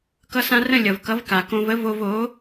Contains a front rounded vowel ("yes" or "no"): no